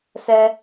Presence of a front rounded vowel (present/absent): absent